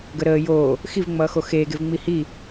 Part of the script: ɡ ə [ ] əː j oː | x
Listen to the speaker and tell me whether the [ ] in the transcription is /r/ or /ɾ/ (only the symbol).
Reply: ɾ